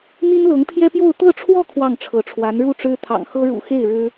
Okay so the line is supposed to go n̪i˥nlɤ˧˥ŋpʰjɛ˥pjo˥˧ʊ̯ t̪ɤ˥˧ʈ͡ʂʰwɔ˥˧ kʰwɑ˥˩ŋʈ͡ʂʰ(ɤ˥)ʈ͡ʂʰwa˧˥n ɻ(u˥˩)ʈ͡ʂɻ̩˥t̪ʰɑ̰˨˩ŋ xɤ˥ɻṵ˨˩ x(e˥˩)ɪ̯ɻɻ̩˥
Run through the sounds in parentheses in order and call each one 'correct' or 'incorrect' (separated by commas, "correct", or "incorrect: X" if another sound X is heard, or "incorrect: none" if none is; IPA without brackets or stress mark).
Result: incorrect: ɤ˧˥, correct, correct